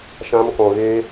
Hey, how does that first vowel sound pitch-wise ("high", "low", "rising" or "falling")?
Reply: high